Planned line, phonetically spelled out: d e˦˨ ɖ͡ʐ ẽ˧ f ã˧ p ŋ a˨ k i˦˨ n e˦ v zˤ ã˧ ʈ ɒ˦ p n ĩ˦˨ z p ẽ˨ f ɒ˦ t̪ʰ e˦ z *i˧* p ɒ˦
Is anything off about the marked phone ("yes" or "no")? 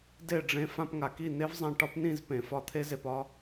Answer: yes